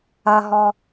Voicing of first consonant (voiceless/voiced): voiced